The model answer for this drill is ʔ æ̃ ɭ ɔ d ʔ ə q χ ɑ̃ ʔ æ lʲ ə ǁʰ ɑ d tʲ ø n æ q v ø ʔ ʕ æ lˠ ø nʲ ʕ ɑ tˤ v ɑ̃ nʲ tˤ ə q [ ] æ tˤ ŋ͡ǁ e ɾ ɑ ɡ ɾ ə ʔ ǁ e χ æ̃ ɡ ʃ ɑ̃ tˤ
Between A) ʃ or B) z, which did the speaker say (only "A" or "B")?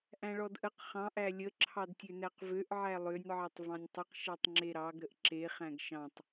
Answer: A